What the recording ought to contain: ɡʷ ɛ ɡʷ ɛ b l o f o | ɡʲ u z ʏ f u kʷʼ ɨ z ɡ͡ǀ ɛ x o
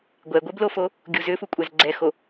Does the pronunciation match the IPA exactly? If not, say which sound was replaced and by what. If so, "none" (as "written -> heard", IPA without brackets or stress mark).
ɨ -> ɛ